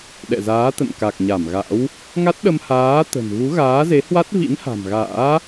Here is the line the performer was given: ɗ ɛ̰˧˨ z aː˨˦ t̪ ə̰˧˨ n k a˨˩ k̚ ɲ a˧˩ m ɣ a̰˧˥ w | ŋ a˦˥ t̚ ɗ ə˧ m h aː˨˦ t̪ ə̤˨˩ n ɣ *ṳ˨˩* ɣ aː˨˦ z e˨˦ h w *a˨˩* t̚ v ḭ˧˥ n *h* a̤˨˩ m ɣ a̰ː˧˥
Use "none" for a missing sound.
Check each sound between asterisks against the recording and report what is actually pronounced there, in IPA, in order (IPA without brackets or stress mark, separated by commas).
u˨˦, a˦˥, h